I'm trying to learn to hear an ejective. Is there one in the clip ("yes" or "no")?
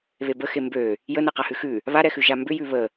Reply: no